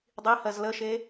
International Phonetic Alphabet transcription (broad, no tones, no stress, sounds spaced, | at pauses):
dˤ i h ɜ z l ə ʃ e